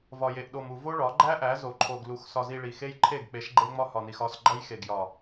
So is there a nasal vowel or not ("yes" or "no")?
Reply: no